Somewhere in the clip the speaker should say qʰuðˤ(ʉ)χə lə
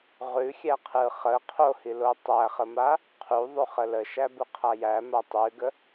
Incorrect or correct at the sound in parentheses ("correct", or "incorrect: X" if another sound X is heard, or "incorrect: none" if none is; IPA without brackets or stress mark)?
correct